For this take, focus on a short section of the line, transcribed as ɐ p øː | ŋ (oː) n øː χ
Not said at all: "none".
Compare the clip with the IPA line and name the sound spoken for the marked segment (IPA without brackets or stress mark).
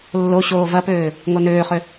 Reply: o